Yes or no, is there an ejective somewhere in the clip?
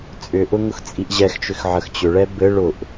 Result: yes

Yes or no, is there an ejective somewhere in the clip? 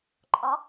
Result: yes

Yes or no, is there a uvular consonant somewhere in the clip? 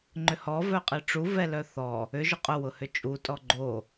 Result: yes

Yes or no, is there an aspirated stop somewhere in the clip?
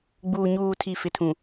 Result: yes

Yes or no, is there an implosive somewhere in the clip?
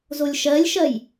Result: no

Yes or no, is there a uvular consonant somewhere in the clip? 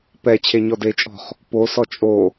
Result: yes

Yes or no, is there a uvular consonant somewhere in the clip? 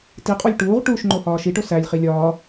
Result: yes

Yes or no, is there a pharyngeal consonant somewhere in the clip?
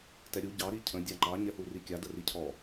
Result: no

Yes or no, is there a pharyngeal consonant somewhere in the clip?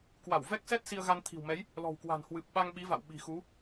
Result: no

